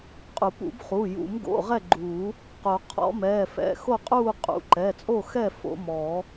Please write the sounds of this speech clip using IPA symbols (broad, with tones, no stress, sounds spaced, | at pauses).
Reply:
qʼ u˨˩˦ p ṵ˨˩˦ b χ uː˩˧˩ j ṵ˨˩˦ m ɡ o̰˩˧˩ ʁ ɛ˥˨ ɡ͡ǃ uː˨˩˦ | q o˨˩˦ qʰ ɔ̰˨˩˦ m ɛː˩˧˩ f ɛ̰˩˧˩ x o˥˨ qʼ uː˥˨ qʼ ṵ˩˧˩ ǃ ɛ˩˧˩ t͡sʼ o˥˨ x ɛ˥˨ f o̰˨˩˦ m ɔː˨˩˦